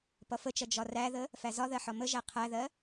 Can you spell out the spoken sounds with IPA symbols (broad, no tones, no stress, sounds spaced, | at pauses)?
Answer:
p ʌ f ə t͡ʃ ʌ d͡ʒ ɒ r æ ð ə | f æ z ɒ ð ɜ ħ ɒ m ə ʒ æ qʰ æ ð ɜ